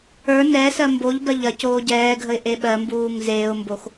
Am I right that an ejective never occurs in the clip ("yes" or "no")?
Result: yes